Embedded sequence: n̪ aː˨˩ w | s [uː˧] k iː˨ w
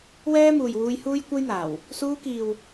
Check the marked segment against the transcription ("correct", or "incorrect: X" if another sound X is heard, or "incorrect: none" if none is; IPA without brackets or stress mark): correct